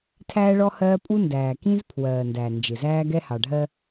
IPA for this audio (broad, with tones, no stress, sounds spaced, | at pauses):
tʰ æː˦ ɭ ɔ˦ h ɜː˦ pʼ u˦ n d æː˨ k ĩ˦ z pʰ w ɜː˨ n d æ˨ n d͡ʒ ɪ˨ z æː˦ ɡ ɛ˦ h ɑ˨ ɖʱ ɜ˦